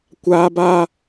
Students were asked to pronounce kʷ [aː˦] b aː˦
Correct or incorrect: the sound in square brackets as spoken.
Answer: correct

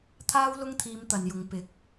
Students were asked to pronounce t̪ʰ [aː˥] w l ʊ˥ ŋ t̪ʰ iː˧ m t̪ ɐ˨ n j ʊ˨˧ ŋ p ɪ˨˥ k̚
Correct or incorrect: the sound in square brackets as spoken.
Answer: correct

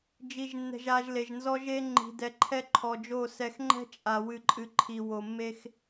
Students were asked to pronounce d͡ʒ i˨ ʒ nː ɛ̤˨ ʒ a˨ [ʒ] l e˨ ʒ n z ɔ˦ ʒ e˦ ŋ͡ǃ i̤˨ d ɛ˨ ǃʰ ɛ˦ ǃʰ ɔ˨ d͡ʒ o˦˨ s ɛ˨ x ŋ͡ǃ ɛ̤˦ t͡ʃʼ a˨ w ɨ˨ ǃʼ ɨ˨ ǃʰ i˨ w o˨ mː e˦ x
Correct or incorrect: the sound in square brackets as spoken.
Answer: correct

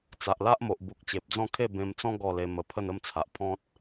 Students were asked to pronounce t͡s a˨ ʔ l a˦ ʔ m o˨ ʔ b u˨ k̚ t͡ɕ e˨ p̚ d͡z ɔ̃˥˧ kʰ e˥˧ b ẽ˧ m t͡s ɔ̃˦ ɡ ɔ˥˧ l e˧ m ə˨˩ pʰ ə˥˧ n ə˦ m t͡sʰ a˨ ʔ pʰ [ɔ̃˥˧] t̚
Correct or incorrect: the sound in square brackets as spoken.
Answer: incorrect: ɔ̃˦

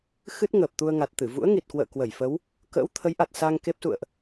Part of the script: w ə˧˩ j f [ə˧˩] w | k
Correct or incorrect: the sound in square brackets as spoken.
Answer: incorrect: ə˨˦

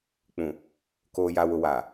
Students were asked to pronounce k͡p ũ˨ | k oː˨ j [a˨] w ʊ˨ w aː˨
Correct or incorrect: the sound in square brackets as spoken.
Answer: correct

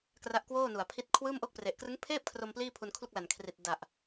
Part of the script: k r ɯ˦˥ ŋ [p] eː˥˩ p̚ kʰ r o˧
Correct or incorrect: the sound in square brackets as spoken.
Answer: incorrect: pʰ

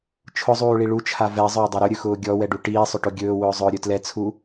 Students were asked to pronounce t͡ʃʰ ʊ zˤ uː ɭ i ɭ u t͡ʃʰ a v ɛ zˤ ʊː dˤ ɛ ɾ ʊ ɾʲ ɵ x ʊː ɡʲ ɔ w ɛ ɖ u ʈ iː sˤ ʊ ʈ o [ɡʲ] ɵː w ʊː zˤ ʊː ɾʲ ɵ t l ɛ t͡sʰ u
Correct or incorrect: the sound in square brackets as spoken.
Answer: correct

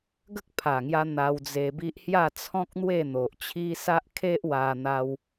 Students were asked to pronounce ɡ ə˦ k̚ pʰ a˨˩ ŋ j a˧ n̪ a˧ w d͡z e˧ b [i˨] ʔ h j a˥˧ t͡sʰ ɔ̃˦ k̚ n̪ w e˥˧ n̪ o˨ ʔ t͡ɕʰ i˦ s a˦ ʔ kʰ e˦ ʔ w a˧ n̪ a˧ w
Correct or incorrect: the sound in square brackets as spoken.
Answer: incorrect: i˦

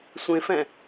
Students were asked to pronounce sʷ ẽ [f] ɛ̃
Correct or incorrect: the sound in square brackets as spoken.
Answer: correct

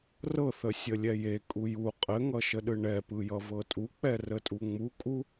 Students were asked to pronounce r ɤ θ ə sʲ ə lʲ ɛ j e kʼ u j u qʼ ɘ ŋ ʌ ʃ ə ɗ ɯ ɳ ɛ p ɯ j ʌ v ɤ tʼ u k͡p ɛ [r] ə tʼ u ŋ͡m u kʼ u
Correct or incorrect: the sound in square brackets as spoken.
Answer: correct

